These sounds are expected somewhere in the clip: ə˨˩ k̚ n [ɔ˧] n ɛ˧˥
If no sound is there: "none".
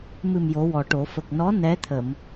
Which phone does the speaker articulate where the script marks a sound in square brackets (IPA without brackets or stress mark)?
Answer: ɔ˧˥